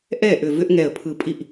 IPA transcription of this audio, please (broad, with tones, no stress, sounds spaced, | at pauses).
ʔ ɛ˥˩ ʔ ʏ˧˩ v ʏ˦ ʔ ŋ ɛ˧˩ ə̯ pʰ ɯ˧˩ pʼ i˥˩ ʔ